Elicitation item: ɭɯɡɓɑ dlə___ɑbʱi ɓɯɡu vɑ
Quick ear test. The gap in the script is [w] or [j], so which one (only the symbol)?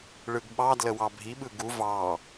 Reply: w